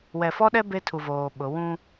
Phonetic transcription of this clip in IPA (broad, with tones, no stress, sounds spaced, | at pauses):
w ɛ˨ f ɔ˦ ɗ ɛ˦ b e˦ tʰ u˨ v oː˨ ɓ ʊ˨˦ w ũ˦